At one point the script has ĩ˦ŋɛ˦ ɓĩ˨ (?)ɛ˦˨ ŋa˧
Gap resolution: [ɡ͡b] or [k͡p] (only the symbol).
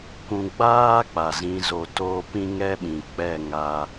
k͡p